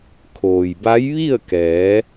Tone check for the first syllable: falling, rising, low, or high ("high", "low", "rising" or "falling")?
low